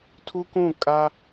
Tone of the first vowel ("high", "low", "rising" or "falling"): high